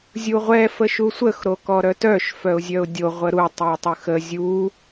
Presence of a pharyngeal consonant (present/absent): absent